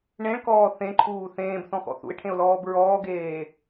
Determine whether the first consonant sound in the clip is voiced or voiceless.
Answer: voiced